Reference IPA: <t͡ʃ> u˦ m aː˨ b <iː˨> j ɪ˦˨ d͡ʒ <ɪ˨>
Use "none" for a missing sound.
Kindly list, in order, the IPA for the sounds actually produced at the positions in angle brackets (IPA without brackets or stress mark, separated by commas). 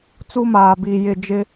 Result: t͡s, iː˨, ɪ˦